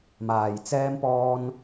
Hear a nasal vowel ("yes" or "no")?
no